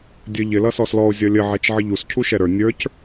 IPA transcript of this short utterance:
dʲə ʎɪ lʌsɔslɔo̯ zʲʌlʲə ʕɛt͡ʃʕəʎus cʰuʃɛɾə˞ nʲə˞c

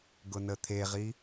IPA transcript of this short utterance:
ɡʊnət̪ʰeʁi

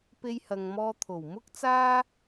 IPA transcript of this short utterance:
pe˧jhɐ˨ŋmɔː˧ t̪ʰo˨˩w mʊ˥k̚ t͡saː˥

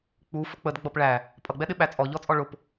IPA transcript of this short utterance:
k͡pu fʊk͡pəd ɡ͡bʌpɭæ | pʼʌɡ͡bɛɗɪ ɓæt͡sʼɔʎɔt͡sʼɔ ɭʊp

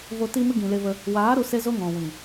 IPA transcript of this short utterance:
vo˧ ti˧mɨ˧ ɡĩ˨le˧və˧ | waː˨˦ ɾu˧ se˧zo˧ ŋɔ̃˨wĩ˨

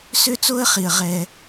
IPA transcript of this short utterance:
sø˦t͡so˦ə̯χi˨ə̯ ʁɛ˦

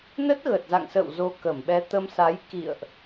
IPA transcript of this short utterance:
nə˦˥t̚ɣə˨˩t̚za̰˧˨ŋsə̰ː˧˨w zo˧kə˧˩mɓɛ˧ t̪ə˧msa˨˦j kḭ˧˨ə̯ʔ

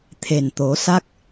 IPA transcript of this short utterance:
t̪ʰe˨˩nt̪o˨˩˦sa˦˥k̚

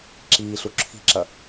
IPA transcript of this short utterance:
ǁiːɬu ǁʰi̤ǁɐ

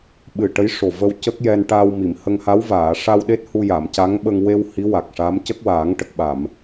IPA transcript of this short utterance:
ɓɨ˨˩ ʈə˧˥jʂo˨˩və˧w cə˦˥k̚jɛ˧n ʈa˧wmi˨˩˨mhə˧ŋ ha˧˥wvaː˨˩˨ʂa˧wɗe˦˥t̚ hu˧ja˨˩˨m ca˧˥ŋɓə˧ŋ we˧w hi˧˥wa˨˩k̚ʂa˧˥mcə˦˥k̚ waː˨˩˦ŋʈə˨˩k̚ɓa˨˩˨m

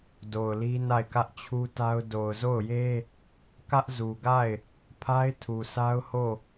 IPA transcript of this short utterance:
do˨ʊ̯li˦na˦˨ɪ̯ kä˦ʔt͡ɕʰu˦ta˦ʊ̯ do˨ʊ̯zo˦˨ʊ̯je˦ | kä˦ʔzu˨ɡa˦˨ɪ̯ | pʰa˦ɪ̯tʰu˨sa˦ʊ̯ ho˦˨

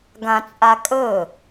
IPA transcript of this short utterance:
ɡãt͡sʼakʼɵ

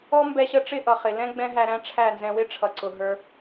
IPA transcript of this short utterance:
ɔ˦mbɛ˧ɕə˧ʈ͡ʂɪ˦˨ ʔʌ˨χɪ˨lɛ̃˦ ɡ͡bɛ̃˦ɦæ˧ɾæ̃˦ ʈ͡ʂʰæ˦˨nzɛ̃˧wɪ˦ ʈ͡ʂʰʌ˨ǀʊ˨ ɦə˞˧

